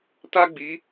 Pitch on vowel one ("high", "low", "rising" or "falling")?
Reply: high